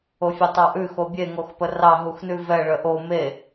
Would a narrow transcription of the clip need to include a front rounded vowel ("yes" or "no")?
yes